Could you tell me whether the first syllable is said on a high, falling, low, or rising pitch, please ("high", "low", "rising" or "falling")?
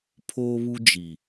high